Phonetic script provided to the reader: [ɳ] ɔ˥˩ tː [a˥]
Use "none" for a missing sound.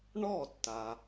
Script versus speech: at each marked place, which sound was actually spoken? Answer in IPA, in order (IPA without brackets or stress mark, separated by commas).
ɳ, a˩